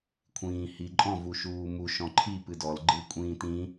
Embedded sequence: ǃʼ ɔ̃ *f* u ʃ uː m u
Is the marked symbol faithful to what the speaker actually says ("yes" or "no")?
no